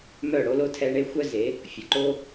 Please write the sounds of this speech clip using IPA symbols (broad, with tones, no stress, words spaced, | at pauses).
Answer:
mœ˦˨ɽo˦lo˦ tʰɛ˦ɳe˦ xʷœ˦ze˨˦ | fʲɔ˨ǃo˦